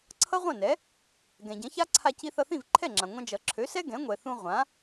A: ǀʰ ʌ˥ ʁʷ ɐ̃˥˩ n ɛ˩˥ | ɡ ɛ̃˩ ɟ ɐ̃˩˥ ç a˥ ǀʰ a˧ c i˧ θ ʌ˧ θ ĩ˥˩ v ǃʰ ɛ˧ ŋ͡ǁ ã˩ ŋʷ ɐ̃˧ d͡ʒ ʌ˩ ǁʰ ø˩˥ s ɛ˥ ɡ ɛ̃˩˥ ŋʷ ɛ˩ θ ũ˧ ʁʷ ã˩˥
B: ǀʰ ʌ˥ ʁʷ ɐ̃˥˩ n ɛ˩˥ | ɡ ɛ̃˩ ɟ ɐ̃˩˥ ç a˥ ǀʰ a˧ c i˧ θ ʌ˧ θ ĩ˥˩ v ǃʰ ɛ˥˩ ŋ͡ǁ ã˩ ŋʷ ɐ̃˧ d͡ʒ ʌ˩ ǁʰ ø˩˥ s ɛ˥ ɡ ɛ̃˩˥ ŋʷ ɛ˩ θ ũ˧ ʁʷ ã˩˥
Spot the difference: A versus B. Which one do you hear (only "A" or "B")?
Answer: B